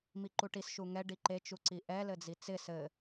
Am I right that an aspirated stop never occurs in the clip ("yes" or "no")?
yes